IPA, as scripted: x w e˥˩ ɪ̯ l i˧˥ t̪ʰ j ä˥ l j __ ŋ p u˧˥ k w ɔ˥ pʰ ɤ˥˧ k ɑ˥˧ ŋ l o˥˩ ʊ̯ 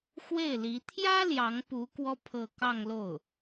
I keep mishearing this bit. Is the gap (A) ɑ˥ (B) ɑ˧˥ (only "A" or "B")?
B